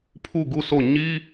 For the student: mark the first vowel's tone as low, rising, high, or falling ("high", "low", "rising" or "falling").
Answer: falling